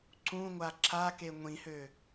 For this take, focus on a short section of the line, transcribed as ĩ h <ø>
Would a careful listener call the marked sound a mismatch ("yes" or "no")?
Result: no